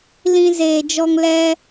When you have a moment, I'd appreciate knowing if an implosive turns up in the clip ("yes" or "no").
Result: no